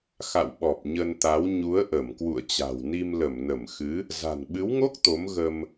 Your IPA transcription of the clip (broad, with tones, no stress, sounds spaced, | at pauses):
x a̰˧˨ w ɓ ɔ˨˩ p̚ ɲ ə˧ n t̪ a˨˦ w ɲ u˨˦ ə̯ ʔ ə˧˩ m k w ṵ˧˨ ə̯ t͡ɕ a̤˨˩ w n i˧ m l ə˧˩ m n ə˧˩ m x ɨ˨˦ | z a̤˨˩ n ɓ ɨ˨˦ w ŋ o˦˥ k̚ t̪ o˨˦ m ɣ ə˧ m